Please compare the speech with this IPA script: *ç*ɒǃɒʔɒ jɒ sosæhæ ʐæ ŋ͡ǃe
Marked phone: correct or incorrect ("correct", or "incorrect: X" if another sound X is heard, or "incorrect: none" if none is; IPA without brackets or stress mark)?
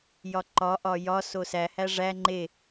incorrect: j